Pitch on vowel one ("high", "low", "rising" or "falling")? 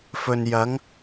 low